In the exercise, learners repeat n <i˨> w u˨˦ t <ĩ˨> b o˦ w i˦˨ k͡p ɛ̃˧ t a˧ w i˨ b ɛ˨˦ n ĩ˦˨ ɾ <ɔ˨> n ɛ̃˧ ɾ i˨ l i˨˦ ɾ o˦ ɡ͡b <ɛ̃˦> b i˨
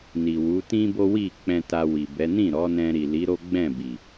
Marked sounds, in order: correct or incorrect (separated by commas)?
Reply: correct, incorrect, incorrect, incorrect